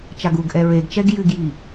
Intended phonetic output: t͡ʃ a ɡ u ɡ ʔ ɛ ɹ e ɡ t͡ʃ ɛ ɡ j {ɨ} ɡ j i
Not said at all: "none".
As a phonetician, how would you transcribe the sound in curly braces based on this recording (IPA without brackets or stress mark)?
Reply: ɨ